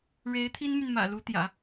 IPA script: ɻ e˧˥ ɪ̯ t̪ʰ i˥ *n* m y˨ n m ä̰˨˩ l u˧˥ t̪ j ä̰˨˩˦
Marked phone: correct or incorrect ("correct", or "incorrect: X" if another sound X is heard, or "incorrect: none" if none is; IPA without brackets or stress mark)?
correct